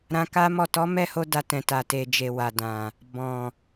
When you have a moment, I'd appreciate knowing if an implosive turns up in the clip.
no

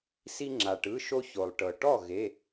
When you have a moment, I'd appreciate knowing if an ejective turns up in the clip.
no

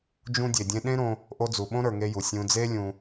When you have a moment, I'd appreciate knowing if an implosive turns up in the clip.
yes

